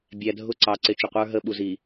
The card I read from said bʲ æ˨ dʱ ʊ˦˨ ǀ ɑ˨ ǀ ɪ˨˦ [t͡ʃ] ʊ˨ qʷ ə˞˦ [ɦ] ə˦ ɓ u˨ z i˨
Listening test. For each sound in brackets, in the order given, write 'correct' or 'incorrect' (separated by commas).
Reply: correct, correct